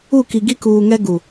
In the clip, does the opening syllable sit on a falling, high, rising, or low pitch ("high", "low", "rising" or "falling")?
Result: falling